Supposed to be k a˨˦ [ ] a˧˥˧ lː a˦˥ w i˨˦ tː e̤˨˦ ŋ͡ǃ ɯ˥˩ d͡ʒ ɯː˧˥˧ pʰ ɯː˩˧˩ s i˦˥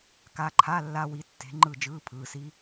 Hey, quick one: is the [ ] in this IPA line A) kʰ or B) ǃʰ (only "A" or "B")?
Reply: B